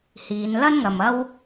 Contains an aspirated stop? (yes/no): no